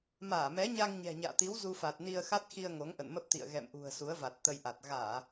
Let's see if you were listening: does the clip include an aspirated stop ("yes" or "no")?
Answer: no